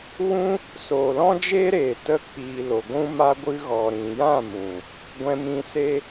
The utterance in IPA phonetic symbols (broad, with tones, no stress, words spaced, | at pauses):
wũ˦ | soː˨lɔ̃˦d͡ʒeː˦ɾeː˨ tə˧k͡piː˨ lo˨ɡʷũ˦ ma˧ɡʷɨ˧ɣɔ˨ ɾĩ˨jã˦˨mũ˨ | ɡʷɛ̃˧mĩ˧se˦